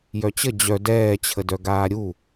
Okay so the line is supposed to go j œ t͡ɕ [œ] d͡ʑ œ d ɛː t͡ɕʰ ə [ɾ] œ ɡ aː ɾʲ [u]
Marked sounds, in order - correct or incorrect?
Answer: incorrect: ə, incorrect: d, correct

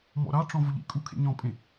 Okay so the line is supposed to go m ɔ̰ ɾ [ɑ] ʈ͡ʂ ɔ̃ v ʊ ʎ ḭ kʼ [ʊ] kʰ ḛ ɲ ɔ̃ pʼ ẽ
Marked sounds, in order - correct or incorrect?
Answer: correct, incorrect: u

